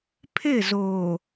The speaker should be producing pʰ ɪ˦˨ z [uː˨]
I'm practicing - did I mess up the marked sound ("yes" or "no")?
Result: yes